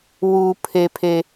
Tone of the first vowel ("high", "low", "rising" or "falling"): high